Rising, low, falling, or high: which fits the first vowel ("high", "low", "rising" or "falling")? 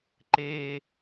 low